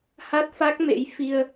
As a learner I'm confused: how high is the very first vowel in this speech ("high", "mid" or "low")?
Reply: low